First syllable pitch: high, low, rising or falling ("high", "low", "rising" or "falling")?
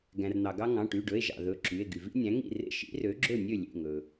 low